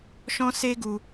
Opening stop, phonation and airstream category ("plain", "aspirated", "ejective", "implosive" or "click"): plain